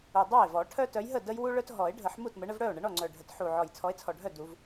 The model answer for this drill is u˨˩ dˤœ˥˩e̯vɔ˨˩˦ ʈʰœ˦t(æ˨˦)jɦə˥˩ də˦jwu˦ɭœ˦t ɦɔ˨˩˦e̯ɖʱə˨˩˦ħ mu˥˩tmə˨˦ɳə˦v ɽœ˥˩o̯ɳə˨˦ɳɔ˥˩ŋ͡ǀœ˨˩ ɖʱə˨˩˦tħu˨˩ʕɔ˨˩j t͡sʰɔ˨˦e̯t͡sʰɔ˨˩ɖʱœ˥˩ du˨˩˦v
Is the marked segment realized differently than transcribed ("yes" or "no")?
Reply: yes